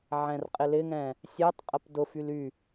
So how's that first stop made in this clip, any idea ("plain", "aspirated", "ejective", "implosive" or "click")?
ejective